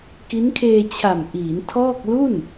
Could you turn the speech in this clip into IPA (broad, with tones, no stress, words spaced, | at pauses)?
ki˦˥nkʰeː˧t͡ɕʰa˨˩mʔiː˩˦n tʰɔː˥˩k̚ lu˥˩n